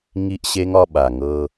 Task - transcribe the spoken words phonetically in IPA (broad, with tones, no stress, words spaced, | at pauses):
ŋi˦ʔɕe˦ŋɒ˧ ɓa˨ŋɤ˧